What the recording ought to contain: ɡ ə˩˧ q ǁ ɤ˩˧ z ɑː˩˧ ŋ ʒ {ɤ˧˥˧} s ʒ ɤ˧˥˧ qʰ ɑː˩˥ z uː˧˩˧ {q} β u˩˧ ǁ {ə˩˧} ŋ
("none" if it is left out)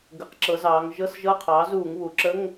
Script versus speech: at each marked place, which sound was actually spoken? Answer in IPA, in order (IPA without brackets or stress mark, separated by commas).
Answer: ɤ˧˥˧, ŋ, ə˧˥˧